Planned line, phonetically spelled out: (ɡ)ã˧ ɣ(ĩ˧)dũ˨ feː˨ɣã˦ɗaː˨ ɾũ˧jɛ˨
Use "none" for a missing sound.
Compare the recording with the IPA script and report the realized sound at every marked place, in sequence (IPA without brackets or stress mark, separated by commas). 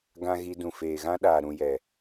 ɡ, i˧